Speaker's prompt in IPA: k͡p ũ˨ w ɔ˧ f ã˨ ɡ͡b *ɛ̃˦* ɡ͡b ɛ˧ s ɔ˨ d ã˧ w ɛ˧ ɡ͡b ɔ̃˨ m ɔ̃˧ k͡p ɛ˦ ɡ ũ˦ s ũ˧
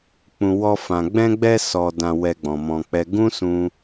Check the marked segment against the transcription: incorrect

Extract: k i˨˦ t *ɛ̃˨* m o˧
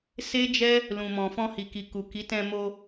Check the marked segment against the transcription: incorrect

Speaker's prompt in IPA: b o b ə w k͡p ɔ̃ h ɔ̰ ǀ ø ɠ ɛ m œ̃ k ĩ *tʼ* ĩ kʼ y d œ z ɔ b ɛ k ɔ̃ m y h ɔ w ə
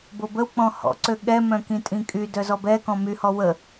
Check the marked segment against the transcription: correct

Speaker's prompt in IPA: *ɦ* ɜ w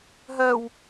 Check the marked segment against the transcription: correct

